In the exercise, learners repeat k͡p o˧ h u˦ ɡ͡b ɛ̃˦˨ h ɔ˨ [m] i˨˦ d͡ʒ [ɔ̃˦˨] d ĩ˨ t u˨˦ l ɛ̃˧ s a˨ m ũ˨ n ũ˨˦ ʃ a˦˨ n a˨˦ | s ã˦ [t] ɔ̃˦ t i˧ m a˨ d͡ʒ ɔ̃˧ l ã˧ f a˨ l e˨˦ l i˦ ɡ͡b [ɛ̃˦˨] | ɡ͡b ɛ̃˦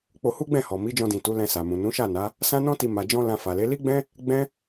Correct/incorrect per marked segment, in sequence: correct, incorrect: ɔ̃˧, incorrect: n, incorrect: ɛ̃˦

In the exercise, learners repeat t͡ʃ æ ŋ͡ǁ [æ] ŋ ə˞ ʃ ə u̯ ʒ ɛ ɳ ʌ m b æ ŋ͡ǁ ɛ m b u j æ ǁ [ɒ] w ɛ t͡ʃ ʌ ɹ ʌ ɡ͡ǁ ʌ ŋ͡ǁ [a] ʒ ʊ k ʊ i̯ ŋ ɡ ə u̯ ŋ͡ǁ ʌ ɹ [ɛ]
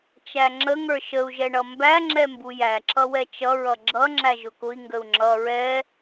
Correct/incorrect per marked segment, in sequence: incorrect: ə, incorrect: ʌ, incorrect: æ, correct

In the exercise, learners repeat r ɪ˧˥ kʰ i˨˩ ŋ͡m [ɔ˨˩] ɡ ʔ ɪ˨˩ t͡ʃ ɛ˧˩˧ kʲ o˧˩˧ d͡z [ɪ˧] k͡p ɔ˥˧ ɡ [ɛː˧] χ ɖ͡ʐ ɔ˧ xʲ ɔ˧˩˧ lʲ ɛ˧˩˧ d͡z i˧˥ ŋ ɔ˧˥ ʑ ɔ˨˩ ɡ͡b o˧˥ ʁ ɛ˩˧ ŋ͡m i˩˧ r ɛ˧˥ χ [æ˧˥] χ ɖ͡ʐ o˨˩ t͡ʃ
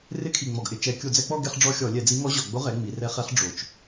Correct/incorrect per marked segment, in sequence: correct, incorrect: ɛ˧, incorrect: ɛ˧, incorrect: ɛ˧˥

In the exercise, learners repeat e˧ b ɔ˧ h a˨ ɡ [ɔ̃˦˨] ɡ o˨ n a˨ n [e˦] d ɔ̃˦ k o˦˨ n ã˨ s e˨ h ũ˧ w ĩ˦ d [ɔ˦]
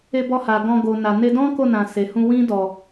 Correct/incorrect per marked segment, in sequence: incorrect: ɔ̃˧, incorrect: e˧, incorrect: ɔ˧

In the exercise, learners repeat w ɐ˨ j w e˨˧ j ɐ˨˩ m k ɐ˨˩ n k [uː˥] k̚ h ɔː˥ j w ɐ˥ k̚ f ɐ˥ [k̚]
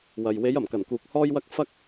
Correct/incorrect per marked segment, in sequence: incorrect: uː˨, correct

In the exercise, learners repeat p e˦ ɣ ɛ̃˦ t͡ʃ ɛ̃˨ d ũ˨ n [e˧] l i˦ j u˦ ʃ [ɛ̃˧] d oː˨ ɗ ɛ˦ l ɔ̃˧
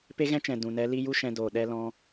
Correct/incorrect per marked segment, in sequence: incorrect: ɛ˧, correct

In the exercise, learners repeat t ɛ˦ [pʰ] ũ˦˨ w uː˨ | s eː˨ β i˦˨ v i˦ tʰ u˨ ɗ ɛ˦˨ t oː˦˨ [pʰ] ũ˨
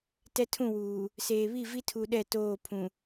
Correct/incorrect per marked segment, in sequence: incorrect: tʰ, correct

